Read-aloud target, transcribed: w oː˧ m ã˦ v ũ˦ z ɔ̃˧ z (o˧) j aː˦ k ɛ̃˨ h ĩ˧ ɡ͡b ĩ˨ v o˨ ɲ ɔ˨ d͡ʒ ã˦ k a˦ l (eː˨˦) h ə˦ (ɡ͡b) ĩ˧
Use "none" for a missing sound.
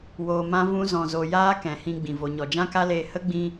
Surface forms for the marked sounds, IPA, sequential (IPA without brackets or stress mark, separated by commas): o˧, eː˧, ɡ͡b